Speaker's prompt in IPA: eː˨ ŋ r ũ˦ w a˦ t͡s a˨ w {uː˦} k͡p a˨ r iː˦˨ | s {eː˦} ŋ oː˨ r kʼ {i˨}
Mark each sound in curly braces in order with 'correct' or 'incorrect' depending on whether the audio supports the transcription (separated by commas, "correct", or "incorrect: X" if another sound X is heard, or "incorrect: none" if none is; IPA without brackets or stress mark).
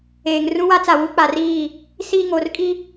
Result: incorrect: u˦, incorrect: iː˦, incorrect: i˦